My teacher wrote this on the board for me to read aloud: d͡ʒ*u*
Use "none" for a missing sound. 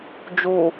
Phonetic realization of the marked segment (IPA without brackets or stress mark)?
u